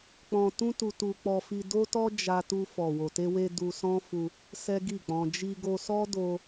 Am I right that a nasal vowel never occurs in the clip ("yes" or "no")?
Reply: no